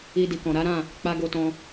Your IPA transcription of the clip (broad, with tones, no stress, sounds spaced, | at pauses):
i˧ d i˨ k ɔ̃˨ ɾ a˨˦ ɾ ã˦˨ | k͡p a˧ ɡ o˧ t ɔ̃˧